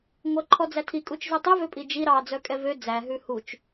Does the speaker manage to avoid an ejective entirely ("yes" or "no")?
no